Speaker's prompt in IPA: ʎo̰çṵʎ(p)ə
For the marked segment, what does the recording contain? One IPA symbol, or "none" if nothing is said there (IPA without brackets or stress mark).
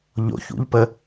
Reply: p